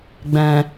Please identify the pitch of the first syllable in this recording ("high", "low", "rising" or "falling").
low